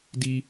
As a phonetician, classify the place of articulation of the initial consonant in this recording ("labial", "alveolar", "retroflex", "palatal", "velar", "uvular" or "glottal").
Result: alveolar